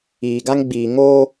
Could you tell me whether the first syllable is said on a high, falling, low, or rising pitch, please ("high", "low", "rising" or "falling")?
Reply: low